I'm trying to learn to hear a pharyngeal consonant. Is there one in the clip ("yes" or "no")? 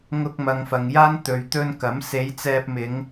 no